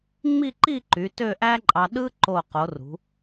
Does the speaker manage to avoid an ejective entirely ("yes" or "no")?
no